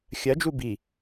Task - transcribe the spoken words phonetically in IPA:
xʲ ɜ d͡ʒ u b i

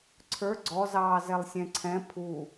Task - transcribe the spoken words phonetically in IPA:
ǀʰ ə˞ ɡ͡ǀ ɔ z ɑː z ɛ lˠ sʲ ɛ̃ ǀʰ ɛ̃ pʰ u

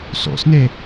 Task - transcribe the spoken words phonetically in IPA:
s o̰ s n e

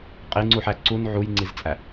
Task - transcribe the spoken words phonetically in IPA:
qʼ i ŋ͡ǀ u ħ æ ǀ u n ʕ u j ŋ͡ǀ i z t͡sʼ æ

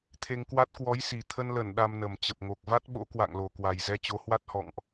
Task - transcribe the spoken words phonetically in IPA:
t̪ʰ e˧ ŋ k w a˦˥ t̚ k w ɔ˨˦ j s i˨˩ t̪ʰ ə˧ n l ə˧˩ n ɗ a˧ m n ə˨˩ m t͡ɕ ə˨˩ p̚ ŋ o˨˩ k̚ v a˦˥ t̚ ɓ o̰˧˥ k w a̰˧˨ ŋ l o˨˩ k w a˨˩ j z ɛ˧ t͡ɕ o˨˦ h w a˦˥ t̚ h ɔ̰˧˨ ŋ ʔ

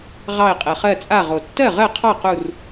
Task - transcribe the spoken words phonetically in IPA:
ʁ ɑ˧˩ ɪ̯ qʼ ɛ˩ χ ɜ˧˩ t͡sʼ a˧˩ ʁ o˩ tː ɜ˥˩ ʁ ɜ˥˩ qʰ ɑ˥˩ q u˧˩ r

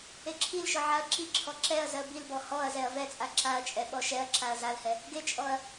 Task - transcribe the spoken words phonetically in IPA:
e ǁʰ i l ʃ ɔ ʕ a ɐ̯ ǁ i ǁʰ ɔ ǁ ɛ ɐ̯ z ɜ b i l b ɔ h ɔ ɐ̯ z ɛ ɐ̯ v ɛ t͡sʼ a ǁ a ɐ̯ t͡ʃʼ ɛ ɓ ɔ ʃ ɛ ɐ̯ ǁ a ɐ̯ z a l h ɛ | ɡ e t͡ʃʼ ɔ ɐ̯

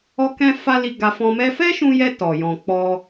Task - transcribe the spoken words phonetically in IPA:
ɔ˦ k ɛ̃˦ f a˦ l i˧ ɡ a˧ f ɔ̃˧ m ɛ˦ f ɛ˦ ʃ ũ˧ j ɛ˧ t ɔ˨ j ɔ̃˨ k͡p ɔ˧

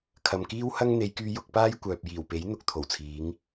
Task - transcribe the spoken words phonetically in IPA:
kʰ ɐ˨ m k iː˥ w h ɐ˥ ŋ n̪ e˨˧ j k yː˧ j ʊ˨˥ k̚ p aː˥ j kʷ œː˨ p̚ j iː˨˩ w p e˨˥ j n̪ ʊ˨ k̚ t̪ʰ o˨˩ w t͡sʰ iː˨˧ ŋ

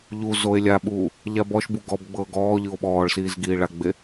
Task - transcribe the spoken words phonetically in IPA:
ʎ u z o e̯ lʲ a ɓ uː | ʎ a b ɔ ʃ b u ɡ ɔ b ɡ͡b ɤː ɡ ɔː ʎ ɯ o̯ ɓ ɔː ɭ s iː z ɡ iː ɭ a ɡ͡b e

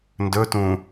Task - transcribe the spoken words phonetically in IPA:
n d ɵ t ũ

